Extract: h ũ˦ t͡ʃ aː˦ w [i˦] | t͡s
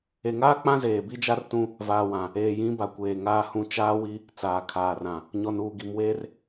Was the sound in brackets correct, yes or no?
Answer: yes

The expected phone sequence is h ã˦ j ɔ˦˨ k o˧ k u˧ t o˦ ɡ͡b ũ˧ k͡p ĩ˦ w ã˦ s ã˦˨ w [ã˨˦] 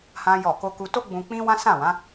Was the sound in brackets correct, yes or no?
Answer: yes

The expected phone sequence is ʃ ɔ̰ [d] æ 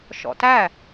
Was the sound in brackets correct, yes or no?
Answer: no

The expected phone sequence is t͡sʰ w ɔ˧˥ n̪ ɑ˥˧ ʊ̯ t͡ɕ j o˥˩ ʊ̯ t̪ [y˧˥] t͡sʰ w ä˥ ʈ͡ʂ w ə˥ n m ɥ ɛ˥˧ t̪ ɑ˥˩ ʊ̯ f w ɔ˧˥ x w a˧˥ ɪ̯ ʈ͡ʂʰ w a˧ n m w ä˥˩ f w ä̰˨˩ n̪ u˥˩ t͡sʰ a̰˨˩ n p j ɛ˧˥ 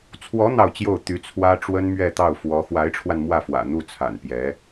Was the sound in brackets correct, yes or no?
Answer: yes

